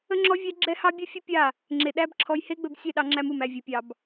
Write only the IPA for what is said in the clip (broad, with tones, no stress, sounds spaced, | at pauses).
ə˦ ŋ͡ǁ ɔ˦ vʲ æ˦ ɡ͡ǁ ɛ˦ h ɑ˦ bʲ ɵ˦ fʲ ə˦ pʲ a˦˨ | ŋ͡ǁ e˧ ɗ æ˦ b ǁʰ ɔ˧ j h e˦ ɡ͡b ɵ˧ b sʲ ɛ˦˨ ɗ ɑ˧ ŋ͡ǁ æ˧ m u˨ m æ˨ vʲ ɵ˨ pʲ ɑ˨ b